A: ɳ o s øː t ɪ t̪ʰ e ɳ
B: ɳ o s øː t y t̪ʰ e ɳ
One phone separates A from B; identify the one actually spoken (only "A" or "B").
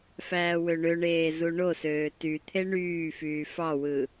B